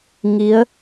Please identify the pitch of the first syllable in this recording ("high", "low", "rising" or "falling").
rising